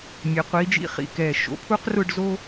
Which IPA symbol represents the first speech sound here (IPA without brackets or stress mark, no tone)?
mʲ